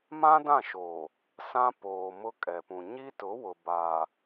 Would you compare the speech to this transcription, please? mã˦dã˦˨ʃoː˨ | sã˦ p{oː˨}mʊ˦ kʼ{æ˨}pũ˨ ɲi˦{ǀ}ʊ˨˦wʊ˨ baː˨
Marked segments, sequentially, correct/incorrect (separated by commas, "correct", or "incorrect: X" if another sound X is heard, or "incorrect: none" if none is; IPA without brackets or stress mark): correct, incorrect: ɛ˨, incorrect: t